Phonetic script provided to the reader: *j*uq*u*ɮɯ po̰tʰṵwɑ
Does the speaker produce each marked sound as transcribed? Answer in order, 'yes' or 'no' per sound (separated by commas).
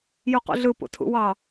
yes, no